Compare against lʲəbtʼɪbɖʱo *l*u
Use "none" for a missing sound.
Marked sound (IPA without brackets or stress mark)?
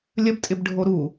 ɾ